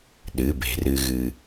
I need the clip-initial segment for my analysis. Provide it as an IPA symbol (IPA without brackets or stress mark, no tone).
ɗ